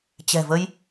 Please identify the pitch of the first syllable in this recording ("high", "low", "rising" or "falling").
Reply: low